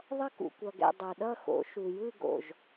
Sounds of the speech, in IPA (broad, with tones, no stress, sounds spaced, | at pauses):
ðˤ ʌ˥˩ k ṵ˨ kʷ ʌ˨ ɡ ɛ̰˨ dˤ o˨ ɗ ʌ˥˧ x o̰˩˥ ʃ u˨ j ɯ˥˧ ɡ o̰˨ ʒ